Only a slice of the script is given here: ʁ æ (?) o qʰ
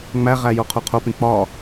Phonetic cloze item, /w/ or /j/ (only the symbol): j